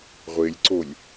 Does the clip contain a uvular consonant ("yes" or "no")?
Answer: yes